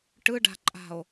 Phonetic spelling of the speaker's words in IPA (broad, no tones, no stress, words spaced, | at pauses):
ʈɯɖa̤ǃʼa̤o̯